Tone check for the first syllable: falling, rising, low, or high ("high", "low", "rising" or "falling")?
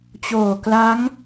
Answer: low